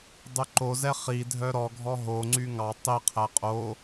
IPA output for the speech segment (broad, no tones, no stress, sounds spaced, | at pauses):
dˤ y ǃ o z ɛ χ i dʱ œ ɾ ɔ ɡʱ ɔ ɦ o ŋ͡ǀ y ŋ ɑ tˤ i qʰ æ qʼ o